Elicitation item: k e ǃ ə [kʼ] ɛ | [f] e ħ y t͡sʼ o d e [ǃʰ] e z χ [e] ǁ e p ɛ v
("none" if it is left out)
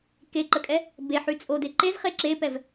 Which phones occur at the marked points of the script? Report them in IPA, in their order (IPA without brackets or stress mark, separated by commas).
kʼ, b, ǃ, e